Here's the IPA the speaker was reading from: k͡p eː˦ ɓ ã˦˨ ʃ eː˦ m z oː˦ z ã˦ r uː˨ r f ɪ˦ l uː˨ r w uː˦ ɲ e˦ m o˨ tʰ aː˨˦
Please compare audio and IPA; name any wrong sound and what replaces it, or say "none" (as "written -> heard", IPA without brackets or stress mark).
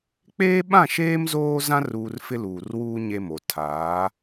none